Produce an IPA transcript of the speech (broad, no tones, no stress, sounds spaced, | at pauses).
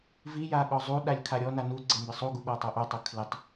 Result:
v i j a ɠ ɔ zˤ u ɗ a lʲ kʰ a ɾʲ ɔ n a n u ɡ͡ǀ e m b ɪ sˤ u ɡ u ɠ ɔ tˤ o ʔ o tˤ ʊ kʰ l ɪ tˤ